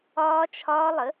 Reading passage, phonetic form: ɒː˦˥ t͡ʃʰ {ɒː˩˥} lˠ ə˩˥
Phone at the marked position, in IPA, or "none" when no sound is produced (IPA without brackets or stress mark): ɒː˦˥